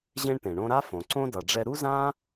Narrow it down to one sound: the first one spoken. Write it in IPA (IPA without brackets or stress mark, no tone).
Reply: ʑ